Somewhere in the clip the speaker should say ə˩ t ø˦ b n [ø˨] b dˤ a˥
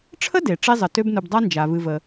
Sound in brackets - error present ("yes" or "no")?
yes